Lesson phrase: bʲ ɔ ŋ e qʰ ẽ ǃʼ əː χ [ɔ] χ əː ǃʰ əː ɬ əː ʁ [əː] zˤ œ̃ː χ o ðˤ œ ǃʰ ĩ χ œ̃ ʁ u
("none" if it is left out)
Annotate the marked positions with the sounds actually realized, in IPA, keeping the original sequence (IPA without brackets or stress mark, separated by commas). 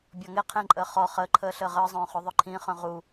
ɔ, əː